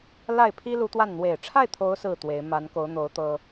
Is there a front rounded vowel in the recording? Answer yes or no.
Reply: no